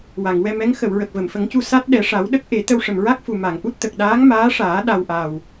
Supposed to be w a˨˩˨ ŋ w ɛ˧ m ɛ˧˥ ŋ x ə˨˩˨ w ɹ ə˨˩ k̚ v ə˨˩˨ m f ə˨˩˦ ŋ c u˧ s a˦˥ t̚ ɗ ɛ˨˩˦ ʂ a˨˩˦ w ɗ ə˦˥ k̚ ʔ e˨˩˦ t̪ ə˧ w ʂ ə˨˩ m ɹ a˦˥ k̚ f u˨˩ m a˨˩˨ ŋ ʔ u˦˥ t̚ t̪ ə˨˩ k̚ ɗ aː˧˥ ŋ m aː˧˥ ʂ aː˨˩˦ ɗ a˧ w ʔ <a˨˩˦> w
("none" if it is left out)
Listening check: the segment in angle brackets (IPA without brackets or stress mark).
a˨˩